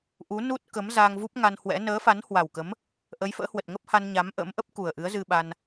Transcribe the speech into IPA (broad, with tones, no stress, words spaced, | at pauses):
ʔu˨˦nu˦˥t̚kə˨˦m za˧ŋvu˦˥p̚ŋa˧nhwɛ̰˧˥ nəː˨˦fa˨˦nhwa˨˩wkə˨˦m | ʔə˨˦jfə̰ː˧˥hwə˨˩t̚ŋə˦˥p̚ ha˧nɲa˨˦mʔə̰ː˧˥mʔə˦˥p̚ ku˨˩ə̯ ʔɨ˨˦ə̯zɨ˧ɓa˧n